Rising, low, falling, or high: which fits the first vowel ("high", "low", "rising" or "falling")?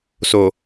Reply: low